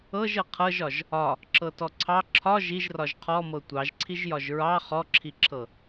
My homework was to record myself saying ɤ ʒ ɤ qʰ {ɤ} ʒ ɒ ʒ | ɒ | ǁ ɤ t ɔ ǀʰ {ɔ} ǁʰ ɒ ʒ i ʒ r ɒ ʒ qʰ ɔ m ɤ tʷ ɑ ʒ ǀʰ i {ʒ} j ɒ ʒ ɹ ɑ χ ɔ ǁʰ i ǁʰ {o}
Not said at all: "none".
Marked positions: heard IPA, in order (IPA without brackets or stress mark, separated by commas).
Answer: ɤ, ɑ, ʒ, ɤ